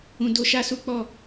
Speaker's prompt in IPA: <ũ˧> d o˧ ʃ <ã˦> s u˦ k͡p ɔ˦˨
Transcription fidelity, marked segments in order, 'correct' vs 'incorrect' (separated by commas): correct, incorrect